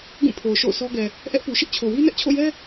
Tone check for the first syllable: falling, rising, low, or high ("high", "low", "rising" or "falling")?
falling